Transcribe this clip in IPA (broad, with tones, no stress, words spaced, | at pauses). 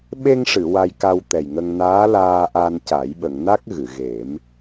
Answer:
ɓe˧ŋʂɨ˨˩˨ wa˧jka˧wt̪ɛ˨˩jŋə˧ŋ naː˧˥ laː˧ ʔa˧nca˨˩˦j ɓə˨˩˨ŋna˦˥k̚ ɣɨ˨˩˨ɣe˨˩˦m